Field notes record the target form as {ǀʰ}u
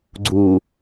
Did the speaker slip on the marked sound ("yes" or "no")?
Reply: yes